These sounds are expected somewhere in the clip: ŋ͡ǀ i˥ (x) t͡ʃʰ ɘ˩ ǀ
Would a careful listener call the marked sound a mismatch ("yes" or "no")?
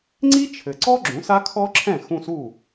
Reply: yes